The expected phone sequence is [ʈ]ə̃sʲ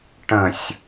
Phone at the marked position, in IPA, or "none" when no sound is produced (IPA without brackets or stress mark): ʈ